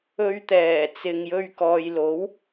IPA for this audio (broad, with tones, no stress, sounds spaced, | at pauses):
ɵ˧ ɥ t̪ ɛː˨˩ t͡s ɪ˨ ŋ j ɵ˧ ɥ k ɔː˨ j l o˨˥ w